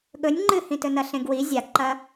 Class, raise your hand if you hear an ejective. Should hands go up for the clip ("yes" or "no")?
no